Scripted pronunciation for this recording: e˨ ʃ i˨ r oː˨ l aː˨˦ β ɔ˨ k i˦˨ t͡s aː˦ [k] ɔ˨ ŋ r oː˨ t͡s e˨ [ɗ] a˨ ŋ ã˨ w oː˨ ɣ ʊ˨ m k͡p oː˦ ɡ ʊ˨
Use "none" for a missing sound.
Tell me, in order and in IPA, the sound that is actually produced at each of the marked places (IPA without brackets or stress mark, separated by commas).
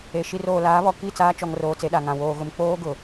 t͡ʃ, ɗ